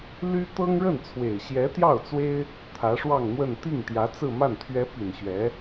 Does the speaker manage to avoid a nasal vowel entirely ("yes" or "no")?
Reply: yes